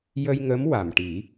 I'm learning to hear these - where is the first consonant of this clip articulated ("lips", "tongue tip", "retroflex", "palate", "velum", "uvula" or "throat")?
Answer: palate